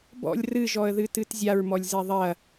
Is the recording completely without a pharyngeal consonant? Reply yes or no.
yes